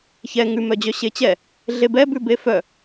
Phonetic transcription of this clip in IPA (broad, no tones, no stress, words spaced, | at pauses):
çɛ ŋʉmœd͡ʑœ ɕet͡ɕɛ | ɮebɛbʉ befœ